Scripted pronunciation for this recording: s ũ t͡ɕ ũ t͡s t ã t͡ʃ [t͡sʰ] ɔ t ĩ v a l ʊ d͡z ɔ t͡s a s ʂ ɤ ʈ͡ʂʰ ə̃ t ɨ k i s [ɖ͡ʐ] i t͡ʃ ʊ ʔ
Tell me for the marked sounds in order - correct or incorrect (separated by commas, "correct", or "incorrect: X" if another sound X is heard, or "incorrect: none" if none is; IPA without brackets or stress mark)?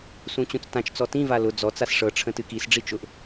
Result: incorrect: t͡s, correct